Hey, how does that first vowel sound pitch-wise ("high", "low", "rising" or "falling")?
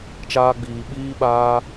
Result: high